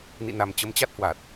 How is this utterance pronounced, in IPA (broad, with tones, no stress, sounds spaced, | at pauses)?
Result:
n ḭ˧˨ n a˨˩ m t͡ɕ ə˨˦ m t͡ɕ a˦˥ t̚ h w a˨˩ t̚